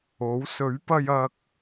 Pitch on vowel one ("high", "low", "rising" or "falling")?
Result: rising